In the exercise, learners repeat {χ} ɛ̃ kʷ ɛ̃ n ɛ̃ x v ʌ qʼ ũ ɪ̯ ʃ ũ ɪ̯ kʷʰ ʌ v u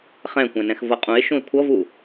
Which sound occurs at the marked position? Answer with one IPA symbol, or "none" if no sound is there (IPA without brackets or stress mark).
χ